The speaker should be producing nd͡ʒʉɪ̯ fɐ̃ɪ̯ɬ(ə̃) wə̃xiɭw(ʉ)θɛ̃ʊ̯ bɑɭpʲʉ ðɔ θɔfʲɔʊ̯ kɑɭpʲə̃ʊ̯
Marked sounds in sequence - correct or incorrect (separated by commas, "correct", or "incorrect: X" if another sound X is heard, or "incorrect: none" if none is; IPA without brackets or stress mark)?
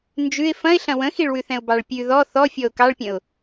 incorrect: ɐ̃, correct